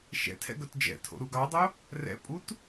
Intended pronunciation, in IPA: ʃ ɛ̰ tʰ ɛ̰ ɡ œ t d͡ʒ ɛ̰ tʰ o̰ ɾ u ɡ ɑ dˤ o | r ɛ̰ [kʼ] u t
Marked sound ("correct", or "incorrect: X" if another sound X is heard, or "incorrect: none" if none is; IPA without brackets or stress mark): incorrect: pʼ